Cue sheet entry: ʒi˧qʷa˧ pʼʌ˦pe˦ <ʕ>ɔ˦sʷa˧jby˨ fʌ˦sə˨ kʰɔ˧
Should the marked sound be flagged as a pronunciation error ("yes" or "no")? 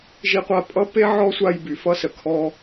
no